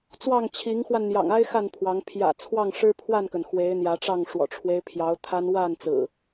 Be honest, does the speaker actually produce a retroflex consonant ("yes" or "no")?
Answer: yes